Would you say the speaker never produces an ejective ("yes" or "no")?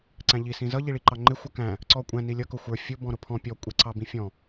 no